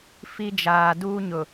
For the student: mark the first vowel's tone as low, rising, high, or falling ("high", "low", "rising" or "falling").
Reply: high